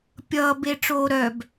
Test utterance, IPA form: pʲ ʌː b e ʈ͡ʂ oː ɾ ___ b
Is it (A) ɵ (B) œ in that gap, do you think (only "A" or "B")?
B